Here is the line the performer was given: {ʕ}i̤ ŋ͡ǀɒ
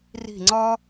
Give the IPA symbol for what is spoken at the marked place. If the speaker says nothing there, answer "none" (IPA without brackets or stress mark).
r